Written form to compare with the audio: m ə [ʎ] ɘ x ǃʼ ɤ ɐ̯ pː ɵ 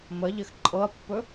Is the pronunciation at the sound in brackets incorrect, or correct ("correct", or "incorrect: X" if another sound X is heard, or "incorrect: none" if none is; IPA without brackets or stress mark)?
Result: correct